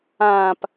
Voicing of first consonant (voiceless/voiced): voiceless